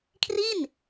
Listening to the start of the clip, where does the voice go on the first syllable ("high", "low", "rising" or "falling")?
falling